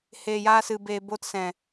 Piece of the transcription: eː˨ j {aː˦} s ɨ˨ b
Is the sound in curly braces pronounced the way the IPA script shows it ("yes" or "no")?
no